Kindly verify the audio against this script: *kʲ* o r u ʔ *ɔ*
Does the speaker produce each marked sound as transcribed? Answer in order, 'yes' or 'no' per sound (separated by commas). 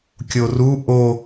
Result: yes, no